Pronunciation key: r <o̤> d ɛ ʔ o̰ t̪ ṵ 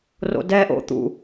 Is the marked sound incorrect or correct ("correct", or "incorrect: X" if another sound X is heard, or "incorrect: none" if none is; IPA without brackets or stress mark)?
incorrect: o̰